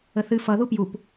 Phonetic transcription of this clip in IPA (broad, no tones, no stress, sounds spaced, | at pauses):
ə θ ɨ f ʌ ð u p j u p